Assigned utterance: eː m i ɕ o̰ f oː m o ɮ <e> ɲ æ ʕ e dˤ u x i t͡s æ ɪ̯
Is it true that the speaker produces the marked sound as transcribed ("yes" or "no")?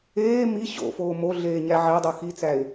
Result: no